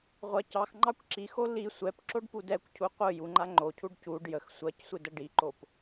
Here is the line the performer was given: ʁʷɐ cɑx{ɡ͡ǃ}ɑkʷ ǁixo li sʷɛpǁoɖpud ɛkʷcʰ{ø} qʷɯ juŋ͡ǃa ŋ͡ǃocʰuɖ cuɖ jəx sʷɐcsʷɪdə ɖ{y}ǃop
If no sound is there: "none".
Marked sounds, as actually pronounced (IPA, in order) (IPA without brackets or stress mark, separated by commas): ŋ͡ǃ, u, i